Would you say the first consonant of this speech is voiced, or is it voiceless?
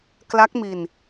voiceless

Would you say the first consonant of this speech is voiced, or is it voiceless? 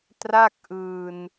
voiceless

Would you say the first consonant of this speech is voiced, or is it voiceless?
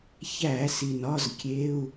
voiceless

